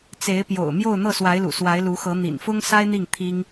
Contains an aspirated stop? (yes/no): yes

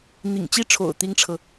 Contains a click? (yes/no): no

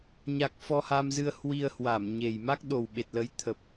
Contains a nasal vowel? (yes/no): no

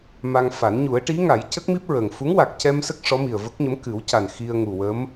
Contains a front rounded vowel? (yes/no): no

